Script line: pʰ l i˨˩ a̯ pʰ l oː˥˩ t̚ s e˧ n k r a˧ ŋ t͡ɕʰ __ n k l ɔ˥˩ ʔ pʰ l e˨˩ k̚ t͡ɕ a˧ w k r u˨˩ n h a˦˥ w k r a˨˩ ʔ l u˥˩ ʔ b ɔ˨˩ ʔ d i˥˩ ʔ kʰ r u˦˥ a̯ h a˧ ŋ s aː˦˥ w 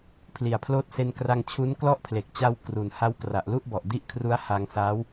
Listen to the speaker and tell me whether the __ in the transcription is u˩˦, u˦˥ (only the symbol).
u˦˥